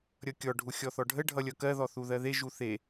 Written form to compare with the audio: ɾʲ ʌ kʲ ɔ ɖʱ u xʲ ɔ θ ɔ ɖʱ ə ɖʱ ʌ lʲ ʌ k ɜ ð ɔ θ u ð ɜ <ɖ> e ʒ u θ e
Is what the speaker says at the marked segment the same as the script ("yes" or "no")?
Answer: no